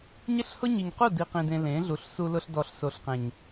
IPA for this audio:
ɲ ɪ˦ ɬ h ʊ˦ ɲ i˨ ɲ q u˦˨ d i˨ q ĩ˨ d ẽ˨ l ẽ˨˦ ɮ u˨ ɬ s u˨ l ʊ˨ ɬ d ɔ˨ ɬ s o˨ ɬ q ẽ˨ ɲ

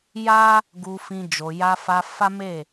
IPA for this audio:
j a˦ | ɡ u˧ f ĩ˧ d͡ʒ o˨ j a˧ f a˧ f a˦ m e˦˨

